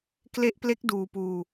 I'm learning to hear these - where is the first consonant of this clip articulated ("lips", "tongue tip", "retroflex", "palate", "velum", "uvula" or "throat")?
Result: velum